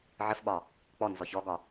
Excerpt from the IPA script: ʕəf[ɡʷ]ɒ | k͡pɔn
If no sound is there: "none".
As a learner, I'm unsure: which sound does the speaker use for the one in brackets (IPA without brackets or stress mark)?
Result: ɓ